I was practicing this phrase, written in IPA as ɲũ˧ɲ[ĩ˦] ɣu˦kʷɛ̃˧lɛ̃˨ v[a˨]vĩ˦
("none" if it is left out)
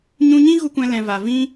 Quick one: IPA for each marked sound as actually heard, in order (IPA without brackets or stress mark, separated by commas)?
ĩ˦, a˨